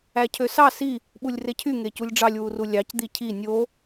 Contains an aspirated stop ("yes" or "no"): yes